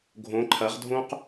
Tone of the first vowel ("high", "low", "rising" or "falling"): rising